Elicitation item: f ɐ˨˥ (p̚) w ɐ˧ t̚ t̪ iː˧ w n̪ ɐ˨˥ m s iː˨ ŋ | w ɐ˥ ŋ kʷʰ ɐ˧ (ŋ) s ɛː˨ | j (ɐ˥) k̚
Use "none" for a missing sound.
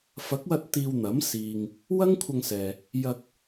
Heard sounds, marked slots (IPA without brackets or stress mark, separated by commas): k̚, ŋ, ɐ˧